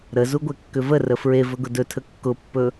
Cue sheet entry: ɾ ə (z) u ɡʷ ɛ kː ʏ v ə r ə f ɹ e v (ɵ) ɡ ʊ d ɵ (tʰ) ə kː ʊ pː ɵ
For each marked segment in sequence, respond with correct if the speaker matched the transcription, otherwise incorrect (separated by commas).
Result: correct, correct, correct